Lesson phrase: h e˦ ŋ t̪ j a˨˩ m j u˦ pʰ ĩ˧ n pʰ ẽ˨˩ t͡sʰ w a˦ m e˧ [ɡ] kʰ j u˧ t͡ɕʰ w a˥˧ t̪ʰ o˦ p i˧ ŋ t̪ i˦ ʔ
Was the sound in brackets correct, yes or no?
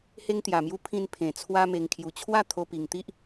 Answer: no